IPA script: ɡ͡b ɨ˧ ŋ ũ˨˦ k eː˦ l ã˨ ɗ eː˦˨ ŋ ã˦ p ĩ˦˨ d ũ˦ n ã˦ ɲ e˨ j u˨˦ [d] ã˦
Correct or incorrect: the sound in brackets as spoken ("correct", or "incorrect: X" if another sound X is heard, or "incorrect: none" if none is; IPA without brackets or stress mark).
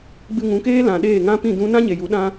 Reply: incorrect: ɗ